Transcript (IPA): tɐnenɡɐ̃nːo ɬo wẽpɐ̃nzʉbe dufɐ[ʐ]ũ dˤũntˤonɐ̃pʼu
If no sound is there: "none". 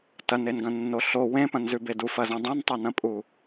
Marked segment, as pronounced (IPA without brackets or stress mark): z